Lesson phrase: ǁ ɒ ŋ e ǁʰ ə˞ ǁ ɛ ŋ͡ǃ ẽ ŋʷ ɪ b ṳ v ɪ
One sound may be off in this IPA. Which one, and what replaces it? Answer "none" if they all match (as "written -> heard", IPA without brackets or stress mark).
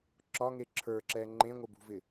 none